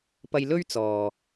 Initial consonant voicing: voiceless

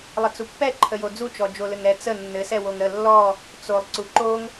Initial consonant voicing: voiced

